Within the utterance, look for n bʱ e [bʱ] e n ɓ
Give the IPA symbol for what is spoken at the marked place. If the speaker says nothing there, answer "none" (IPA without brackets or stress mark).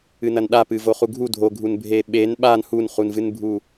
ɓ